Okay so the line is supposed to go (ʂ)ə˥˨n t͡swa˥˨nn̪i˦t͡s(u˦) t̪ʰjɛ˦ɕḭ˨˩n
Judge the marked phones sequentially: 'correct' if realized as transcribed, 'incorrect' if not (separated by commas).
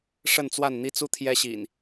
correct, correct